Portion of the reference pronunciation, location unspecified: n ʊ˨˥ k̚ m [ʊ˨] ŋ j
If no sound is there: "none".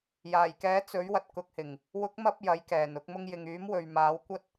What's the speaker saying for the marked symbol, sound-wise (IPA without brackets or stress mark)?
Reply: ʊ˧